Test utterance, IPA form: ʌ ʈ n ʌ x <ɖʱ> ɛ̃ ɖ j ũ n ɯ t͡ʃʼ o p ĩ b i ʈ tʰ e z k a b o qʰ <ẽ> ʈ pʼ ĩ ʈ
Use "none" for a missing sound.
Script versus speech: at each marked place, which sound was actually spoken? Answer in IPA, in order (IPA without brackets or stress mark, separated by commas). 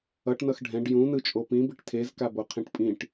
ɖʱ, ĩ